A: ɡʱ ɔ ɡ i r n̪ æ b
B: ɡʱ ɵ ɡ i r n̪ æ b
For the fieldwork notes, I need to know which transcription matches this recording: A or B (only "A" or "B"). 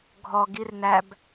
A